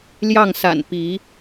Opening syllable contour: falling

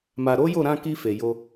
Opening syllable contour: low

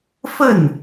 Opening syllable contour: falling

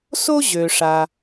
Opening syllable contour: high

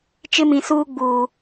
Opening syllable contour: high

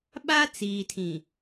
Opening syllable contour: high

